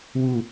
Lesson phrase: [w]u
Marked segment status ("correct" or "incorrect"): correct